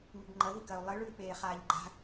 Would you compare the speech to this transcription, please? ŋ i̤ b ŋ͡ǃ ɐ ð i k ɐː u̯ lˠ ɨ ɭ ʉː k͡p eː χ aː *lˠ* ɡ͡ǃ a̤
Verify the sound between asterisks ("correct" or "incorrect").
incorrect